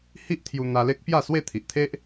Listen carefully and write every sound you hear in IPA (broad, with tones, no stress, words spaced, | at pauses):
hi˦ʔt̪ʰju˧ n̪a˧le˦k̚pja˥˧swe˥˧ t̪ʰi˨ʔt̪ʰe˦ʔ